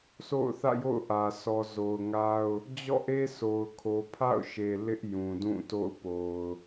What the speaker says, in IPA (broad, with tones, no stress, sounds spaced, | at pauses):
sʰ o̰˦˨ ʊ̯ θ ä̰˦˨ j o̰˦˨ ʊ̯ ʔ ä˨ sʰ ɔ˨ z o˨ ʊ̯ ŋ a˦ ʊ̯ | d͡ʑ ɔ̰˦˨ ʔ e˦ sʰ o˨ ʊ̯ kʰ o˨ pʰ a̰˦˨ ʊ̯ ʃ e˨ l ɪ˦ ʔ j ũ˨ d ũ˦˨ t o̰˦˨ ʊ̯ p o˨ ʊ̯